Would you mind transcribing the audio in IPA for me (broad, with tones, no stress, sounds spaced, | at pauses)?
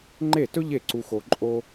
ŋ͡ǃ e˥˩ t ɵ˥ ʎ e˥˩ ǀ u˧ x o˧ ǃʼ o˥